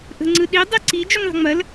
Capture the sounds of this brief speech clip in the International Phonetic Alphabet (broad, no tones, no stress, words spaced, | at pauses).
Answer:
ʔə̤ŋ͡ǀɯɗi dˤiǀi d͡ʒuŋðˤə̤ŋ͡mɐl